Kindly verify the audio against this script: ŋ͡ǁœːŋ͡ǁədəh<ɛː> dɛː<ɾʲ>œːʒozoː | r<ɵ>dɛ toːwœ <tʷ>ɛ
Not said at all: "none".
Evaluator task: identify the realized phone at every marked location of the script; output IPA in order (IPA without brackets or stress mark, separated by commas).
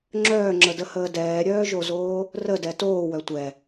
əː, ɾʲ, ə, tʷ